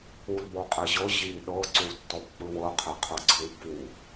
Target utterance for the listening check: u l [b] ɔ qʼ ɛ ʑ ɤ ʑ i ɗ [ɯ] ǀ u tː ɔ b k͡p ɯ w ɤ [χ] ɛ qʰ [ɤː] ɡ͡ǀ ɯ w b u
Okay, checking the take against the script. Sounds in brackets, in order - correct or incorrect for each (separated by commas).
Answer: correct, incorrect, incorrect, incorrect